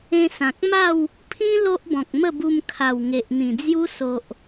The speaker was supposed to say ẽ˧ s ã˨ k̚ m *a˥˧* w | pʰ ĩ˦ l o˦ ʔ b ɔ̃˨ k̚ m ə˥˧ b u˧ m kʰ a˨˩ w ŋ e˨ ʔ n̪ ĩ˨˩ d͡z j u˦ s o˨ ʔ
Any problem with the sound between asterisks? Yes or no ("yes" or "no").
no